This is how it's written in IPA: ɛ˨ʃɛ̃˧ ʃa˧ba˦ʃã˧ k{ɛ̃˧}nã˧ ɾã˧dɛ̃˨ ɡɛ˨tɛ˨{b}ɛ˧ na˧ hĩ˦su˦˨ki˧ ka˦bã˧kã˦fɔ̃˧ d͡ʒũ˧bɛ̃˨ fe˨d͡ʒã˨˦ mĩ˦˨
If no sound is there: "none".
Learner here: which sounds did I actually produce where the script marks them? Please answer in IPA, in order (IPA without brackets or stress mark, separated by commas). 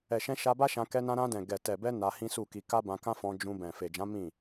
ɛ˧, b